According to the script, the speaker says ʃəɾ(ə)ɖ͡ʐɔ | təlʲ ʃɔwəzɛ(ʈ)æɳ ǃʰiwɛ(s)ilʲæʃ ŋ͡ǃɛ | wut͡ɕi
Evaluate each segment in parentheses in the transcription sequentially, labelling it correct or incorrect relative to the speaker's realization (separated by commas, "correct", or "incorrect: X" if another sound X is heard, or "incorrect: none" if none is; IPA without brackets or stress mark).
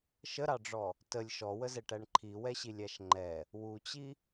incorrect: ɑ, correct, incorrect: ɕ